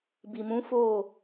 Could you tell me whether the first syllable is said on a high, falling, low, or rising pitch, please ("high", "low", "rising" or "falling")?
low